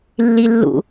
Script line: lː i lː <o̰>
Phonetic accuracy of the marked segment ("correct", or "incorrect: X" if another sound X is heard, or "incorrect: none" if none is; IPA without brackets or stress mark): incorrect: ṵ